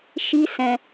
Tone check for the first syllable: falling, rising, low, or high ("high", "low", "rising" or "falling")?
high